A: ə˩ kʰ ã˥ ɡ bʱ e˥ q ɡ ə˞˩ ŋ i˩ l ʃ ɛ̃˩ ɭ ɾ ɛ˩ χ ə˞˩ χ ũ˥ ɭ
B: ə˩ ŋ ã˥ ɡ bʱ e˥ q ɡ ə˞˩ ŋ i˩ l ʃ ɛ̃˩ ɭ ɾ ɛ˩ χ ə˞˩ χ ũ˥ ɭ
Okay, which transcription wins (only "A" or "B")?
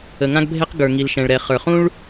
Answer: B